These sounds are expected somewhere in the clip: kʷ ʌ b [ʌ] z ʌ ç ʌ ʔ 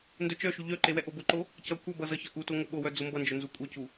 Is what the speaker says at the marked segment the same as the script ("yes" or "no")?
yes